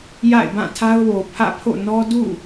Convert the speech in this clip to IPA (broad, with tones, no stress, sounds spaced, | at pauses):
j a̰˦˨ ɪ̯ b ã˦˨ tʰ a˦ ʊ̯ w o˨ pʰ ä̰˦˨ pʰ o̰˦˨ n ɔ˦ d ṵ˦˨